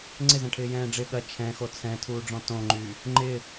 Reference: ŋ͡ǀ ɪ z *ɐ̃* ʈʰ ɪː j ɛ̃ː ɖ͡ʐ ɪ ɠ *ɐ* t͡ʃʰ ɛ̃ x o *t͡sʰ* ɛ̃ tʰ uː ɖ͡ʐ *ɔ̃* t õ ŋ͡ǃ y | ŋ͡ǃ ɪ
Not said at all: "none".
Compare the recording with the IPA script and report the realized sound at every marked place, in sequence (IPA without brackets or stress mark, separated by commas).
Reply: ɐ̃, ɐ, t͡sʰ, ɔ̃